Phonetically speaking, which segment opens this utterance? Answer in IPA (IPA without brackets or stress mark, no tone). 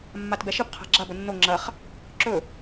mː